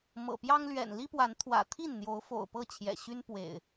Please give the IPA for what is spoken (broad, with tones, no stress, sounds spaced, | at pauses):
m ɤ̰˨˩ p j ɑ˦ ŋ l ɥ ɛ̰˨˩ n l i˦ p w a˨˦ n t̪ʰ w ä̰˨˩ t̪ʰ i˥˨ n n̪ j o˨˦ ʊ̯ f o̰˨˩ ʊ̯ p ɤ˥˨ t͡ɕʰ j ɛ̰˨˩ ɕ y˦ n p w ḛ˨˩ ɪ̯